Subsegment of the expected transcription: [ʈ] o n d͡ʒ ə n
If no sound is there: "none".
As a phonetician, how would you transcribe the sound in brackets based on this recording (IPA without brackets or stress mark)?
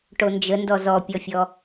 ʈ